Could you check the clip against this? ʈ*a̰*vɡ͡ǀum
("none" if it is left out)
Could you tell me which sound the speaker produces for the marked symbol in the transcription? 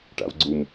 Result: a̰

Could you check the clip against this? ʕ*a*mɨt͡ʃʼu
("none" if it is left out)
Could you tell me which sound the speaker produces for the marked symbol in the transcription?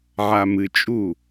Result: a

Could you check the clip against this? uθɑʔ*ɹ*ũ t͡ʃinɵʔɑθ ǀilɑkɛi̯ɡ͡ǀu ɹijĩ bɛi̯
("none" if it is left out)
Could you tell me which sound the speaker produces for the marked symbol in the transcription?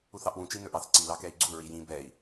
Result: w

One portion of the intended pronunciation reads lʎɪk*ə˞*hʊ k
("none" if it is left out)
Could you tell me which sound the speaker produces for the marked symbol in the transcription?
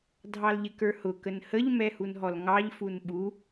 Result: ə˞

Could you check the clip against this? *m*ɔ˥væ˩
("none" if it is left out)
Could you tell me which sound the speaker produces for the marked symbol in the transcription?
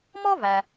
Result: m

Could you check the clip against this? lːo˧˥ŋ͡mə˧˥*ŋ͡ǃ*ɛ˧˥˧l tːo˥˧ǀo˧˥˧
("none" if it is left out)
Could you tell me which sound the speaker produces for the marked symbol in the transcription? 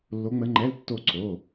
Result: ŋ͡ǃ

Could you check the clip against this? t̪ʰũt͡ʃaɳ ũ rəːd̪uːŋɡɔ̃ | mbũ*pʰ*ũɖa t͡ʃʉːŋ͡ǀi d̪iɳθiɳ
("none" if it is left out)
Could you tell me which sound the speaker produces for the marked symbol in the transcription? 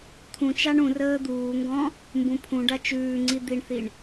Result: pʰ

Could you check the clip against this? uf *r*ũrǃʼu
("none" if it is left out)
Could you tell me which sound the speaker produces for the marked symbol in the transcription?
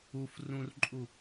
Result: r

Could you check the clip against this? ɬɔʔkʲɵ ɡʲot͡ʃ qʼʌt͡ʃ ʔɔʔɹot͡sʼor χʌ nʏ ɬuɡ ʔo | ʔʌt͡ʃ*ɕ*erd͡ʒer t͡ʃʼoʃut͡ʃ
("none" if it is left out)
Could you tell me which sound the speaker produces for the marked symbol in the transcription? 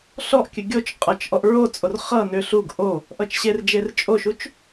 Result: ɕ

